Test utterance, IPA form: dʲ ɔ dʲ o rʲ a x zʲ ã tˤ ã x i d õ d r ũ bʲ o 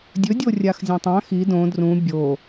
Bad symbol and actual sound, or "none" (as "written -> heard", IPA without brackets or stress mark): ɔ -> ɵ